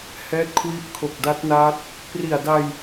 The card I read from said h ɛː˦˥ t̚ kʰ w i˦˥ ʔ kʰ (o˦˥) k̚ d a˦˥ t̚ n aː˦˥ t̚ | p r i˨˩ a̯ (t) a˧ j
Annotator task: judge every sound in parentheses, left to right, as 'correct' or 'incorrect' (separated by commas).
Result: incorrect, incorrect